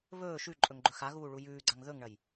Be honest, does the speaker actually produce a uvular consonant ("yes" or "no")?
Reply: no